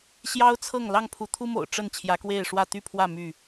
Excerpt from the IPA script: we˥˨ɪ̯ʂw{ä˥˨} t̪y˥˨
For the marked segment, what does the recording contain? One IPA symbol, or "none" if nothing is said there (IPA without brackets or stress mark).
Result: ä˥˨